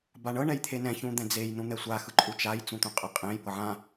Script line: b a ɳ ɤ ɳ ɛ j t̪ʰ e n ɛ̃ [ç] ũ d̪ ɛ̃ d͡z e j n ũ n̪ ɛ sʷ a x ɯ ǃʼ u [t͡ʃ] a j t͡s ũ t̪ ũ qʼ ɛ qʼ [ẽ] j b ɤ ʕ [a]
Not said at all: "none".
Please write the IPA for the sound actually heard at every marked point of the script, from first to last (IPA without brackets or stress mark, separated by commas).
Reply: ç, t͡ʃ, ẽ, ã